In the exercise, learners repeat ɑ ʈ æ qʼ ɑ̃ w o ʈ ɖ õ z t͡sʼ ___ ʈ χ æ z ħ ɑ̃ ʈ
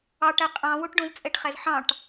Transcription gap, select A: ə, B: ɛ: B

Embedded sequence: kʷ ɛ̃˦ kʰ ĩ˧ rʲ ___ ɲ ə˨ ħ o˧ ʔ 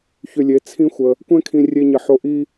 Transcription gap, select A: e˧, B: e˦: A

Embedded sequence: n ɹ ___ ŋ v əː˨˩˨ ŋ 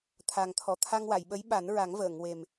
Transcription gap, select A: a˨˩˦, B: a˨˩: A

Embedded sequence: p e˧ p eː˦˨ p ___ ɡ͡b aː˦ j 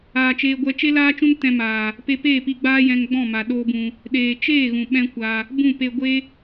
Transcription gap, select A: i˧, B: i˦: A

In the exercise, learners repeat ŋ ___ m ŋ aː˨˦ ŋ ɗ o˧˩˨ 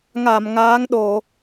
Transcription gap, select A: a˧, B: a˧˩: B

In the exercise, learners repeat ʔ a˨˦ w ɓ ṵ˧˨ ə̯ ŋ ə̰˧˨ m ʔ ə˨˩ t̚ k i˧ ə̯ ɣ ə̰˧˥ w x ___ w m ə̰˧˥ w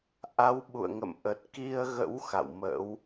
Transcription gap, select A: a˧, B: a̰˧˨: B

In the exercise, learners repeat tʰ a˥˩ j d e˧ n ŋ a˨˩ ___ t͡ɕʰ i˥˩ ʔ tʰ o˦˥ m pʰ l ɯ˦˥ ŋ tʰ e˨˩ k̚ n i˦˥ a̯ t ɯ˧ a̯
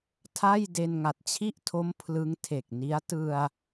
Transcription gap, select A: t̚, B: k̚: A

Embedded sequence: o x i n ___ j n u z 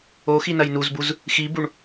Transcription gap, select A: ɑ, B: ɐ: B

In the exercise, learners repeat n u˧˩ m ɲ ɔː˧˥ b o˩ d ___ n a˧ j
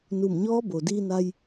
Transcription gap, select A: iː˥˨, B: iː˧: B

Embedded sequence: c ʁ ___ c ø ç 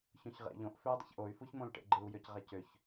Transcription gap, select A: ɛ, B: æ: B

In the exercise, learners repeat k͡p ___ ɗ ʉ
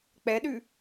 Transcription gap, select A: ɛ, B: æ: A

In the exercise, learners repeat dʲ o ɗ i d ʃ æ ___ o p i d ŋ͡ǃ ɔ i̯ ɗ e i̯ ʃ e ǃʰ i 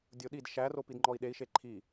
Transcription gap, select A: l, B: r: B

